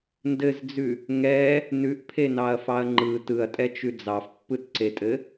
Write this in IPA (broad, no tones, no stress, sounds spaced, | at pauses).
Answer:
n d ɘ z d͡z ʉ | ŋ ɛ | n ʉ ʔ pʰ e n ɑ ɐ̯ f ɑ ɐ̯ ŋ͡ǃ ɯ t ɯ ɐ̯ tʼ ɛ t͡ʃ ʉ d͡z ɑ f pː ɯ t ǀ e tʼ ɘ